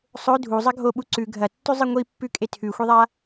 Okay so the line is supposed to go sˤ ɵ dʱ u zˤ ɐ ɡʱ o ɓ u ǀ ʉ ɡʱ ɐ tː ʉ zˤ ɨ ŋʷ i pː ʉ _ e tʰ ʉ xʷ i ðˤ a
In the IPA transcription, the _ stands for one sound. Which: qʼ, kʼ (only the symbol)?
kʼ